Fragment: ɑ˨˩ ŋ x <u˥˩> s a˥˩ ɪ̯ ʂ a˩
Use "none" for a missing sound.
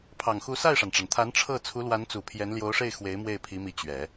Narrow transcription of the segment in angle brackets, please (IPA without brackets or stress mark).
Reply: u˧˥